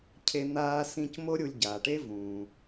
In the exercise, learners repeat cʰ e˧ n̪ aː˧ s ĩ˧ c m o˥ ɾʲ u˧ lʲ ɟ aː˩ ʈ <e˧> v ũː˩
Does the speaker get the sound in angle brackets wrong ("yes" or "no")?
yes